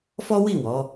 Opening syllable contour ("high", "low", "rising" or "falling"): high